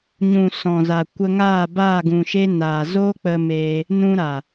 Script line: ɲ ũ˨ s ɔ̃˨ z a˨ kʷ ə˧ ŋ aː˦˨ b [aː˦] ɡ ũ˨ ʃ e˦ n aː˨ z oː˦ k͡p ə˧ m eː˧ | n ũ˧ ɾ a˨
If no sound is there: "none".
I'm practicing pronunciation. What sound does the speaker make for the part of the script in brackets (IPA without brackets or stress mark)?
aː˦˨